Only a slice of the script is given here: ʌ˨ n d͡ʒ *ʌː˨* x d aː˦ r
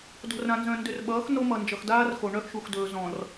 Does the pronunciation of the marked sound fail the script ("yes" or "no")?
yes